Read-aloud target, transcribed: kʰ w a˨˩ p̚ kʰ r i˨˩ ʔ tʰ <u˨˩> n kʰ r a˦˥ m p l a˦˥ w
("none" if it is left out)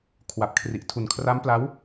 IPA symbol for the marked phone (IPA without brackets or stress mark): u˨˩